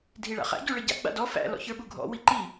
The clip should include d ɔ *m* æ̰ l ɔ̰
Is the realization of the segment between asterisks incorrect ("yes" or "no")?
yes